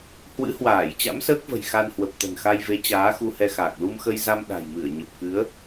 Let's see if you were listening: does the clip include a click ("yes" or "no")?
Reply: no